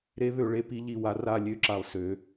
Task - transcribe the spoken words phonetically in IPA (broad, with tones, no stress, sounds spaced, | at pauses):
ɾ e˨˥ β ø˩˧ ɭ e˨˥ p i˨˥ ʎ i˧˩ w a˨˥ r a˧˩ lʲ ø˨˥ ǁ a˧˩ lˠ s ø˩˧